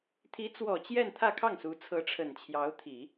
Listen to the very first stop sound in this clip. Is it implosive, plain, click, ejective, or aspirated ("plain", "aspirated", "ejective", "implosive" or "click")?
aspirated